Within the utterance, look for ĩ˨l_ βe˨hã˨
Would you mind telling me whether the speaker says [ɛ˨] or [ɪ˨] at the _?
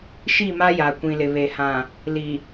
ɪ˨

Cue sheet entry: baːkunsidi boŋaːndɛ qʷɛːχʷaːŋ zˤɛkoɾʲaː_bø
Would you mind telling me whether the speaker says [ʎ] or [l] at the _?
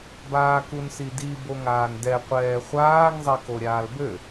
l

